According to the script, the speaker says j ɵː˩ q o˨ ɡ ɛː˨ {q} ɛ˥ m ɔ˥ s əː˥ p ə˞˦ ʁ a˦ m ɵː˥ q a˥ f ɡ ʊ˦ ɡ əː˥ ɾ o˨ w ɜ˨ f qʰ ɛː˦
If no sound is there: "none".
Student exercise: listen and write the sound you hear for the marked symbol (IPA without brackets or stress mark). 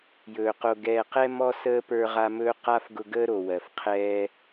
q